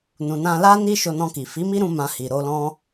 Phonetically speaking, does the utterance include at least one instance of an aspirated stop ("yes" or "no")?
no